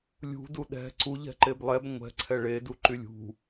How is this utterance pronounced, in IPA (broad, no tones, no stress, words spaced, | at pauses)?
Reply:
lʲṳ duɗɛ̤ ǀu ʎɛ̤ǃeblˠɛb ŋʷɛ̤ǀʰɛ ɭeduǃy lʲṳ